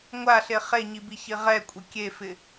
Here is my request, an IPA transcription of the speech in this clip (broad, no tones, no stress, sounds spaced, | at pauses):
ŋʷ a ɬ e χ e ɲ i b i ç i ʁ ɛ kʷʼ ɪ kʲ e f ɪ